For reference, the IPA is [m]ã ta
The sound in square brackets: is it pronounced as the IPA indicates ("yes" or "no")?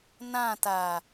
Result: no